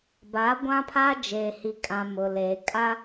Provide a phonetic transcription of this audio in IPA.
ba˨˦ɡʷã˦pʰa˦ d͡ʒeː˨hi˨kʼã˨ mʊ˨leː˨ kʼa˦

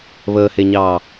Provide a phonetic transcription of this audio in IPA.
βəːheɲɑː

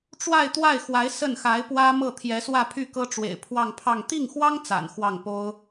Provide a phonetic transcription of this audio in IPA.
ʈ͡ʂwa˥˧ɪ̯t̪wa˥˩ɪ̯xwa˧˥ɪ̯ sə˥˩nxa˧˥ɪ̯pwä˥ mɤ˥˩t̪ʰjɛ˧˥swä˥˧pʰy˥˩ kɤ˥ʈ͡ʂwḛ˨˩ɪ̯ pʰwɑ˥˧ŋpʰɑ˥˧ŋ t̪i˥˩ŋxwɑ˥ŋ t͡sa̰˨˩nxwɑ˥˩ŋpo˥ʊ̯

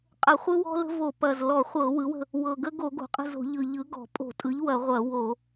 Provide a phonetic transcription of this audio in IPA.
qʼə˧˩˧χʷɯ˦wɔ̤˦ lə̤˦vo˧˩˧pɐ˨˩z lɔ˧˩˧χʷɤ˧˩˧wɯ˩˥wə̤˦˨ | wɤ˨˩ɡə˦ ɡo˧˩˧ ɡo̤˨˩qʼə̤˦˨zo̤˧˩˧ ʎɯ˨˩ʎɯ˩˥ ɡɔ̤˧˩˧ pʼo̤˧˩˧tʼɯ˩˥ʎ wɐ˧˩˧ʁʷɐ˧˩˧ wo˧˩˧

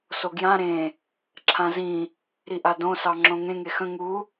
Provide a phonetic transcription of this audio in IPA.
soɡjã ɾẽ | ǁʰãzĩ | ɾiʔadõ sɑŋ͡ǁõŋẽ ŋexə̃ ŋu

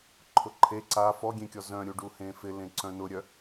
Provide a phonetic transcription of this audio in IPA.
ǃʰʊǃʰe ǀa fɔɡʲẽkʲɔ zœ̃ɾʲuɖu hẽfɪ lẽǀœ̃nʊɾʲœ

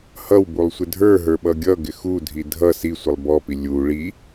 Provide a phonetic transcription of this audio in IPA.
hʌwbulˠsʷɪ dʱə˞ɦə˞ɓʌ ɡʲʌɡɪ xudʱi dʱʌ sisʷɪlˠ bɔpi lʲu ɭi

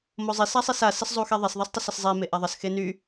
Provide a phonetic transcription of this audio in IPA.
mozˤis asˤisa səszˤuxeðˤes ðˤistˤəsəszˤe meʔaðˤəs xeny

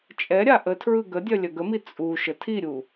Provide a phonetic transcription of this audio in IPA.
t͡ʃʼɛɾʲa ʔətʰɹɯ ɡədʲœ lʲœɡəmi t͡sʼu ʃətʰiɾʲu

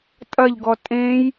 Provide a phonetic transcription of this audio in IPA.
tʼɐʎɡɔ tʼẽj

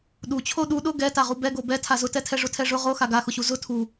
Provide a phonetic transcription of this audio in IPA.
ɗut͡ɕʰo ɗu ɗʊ ɡɛ taʁubɛ ɡobɛ tʰazʊtɛtʰɛ ʐʊtʰɛʐʊ ʁo xaɡaxʊɕu zʊ tʰu

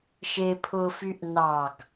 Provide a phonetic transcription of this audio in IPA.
ʃe pʰʊfyʔ nɑɡ

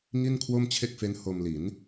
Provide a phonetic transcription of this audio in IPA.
ŋi˥˩nkʰwo˥˩mt͡ɕʰe˥˩k̚fe˦˥n ho˧m li˩˦n

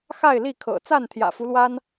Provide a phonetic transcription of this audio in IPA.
xa˥˨ɪ̯li˥˨kʰɤ̰˨˩ t͡sa˥˨nt̪ʰjä̰˨˩fu˦lwa˦n

